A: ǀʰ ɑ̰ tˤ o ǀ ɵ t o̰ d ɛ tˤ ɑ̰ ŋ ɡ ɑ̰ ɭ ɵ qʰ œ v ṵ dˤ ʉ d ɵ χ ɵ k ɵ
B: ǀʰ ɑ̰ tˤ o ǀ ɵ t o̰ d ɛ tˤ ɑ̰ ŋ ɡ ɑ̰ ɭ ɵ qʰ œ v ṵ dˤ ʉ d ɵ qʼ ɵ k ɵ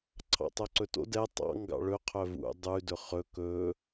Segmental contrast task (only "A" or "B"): A